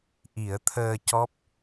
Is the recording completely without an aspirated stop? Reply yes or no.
no